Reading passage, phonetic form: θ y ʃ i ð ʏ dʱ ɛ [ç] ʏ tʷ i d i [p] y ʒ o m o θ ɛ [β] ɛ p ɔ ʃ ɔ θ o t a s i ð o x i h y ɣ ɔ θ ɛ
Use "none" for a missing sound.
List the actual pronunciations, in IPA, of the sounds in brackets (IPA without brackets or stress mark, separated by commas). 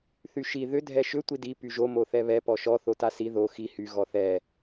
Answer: ʃ, p, β